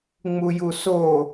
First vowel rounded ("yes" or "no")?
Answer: yes